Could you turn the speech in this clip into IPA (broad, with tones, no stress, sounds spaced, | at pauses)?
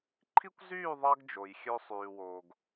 ǃʰ i˦ kʷ z yː˦˨ ðˤ ɑ˦ ɡ d͡ʒ o˨ j xʲ ø˦ sˤ yː˨ w o˨ ɡ